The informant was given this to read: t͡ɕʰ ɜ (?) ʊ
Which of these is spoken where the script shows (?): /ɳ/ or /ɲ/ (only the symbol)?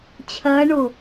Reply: ɳ